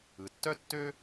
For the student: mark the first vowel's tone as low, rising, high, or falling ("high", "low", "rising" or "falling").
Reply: low